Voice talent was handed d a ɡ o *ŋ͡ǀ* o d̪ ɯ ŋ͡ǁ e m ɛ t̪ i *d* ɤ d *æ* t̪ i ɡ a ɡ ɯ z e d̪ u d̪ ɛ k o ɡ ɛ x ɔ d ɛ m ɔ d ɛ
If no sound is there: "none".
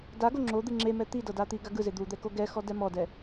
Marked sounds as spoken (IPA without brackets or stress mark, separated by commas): ŋ͡ǁ, d, a